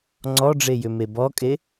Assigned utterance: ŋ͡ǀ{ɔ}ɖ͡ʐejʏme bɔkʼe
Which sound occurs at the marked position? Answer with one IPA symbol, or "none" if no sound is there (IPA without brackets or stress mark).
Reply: ɔ